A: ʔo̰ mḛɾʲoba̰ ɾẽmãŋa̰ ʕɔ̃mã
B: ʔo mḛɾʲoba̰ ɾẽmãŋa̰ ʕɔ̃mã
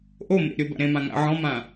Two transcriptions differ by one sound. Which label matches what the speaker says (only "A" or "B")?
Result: B